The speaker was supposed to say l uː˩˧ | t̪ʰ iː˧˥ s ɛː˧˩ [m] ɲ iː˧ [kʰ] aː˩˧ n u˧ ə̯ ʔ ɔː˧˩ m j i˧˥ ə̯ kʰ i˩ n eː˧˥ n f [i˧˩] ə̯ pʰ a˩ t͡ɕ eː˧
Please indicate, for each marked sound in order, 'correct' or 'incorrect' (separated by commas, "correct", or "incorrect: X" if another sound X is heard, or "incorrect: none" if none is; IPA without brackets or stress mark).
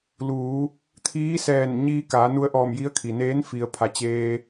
incorrect: n, incorrect: k, incorrect: i˩